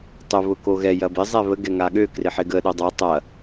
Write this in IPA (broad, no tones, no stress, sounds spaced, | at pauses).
tˤ ʊ β ʊ k o ɣ ɛ j ɐ b ɪ zˤ ɛ β ə ɡ ɛ ŋ a ɠ ø k r ɪ ħ ɪ ɡ ə ɗ o dˤ a tˤ ɐ